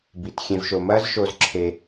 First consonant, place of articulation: labial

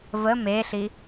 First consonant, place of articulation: labial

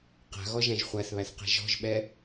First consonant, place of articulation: uvular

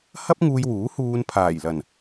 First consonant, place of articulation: glottal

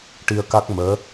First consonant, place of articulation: retroflex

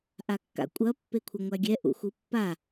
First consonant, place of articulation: glottal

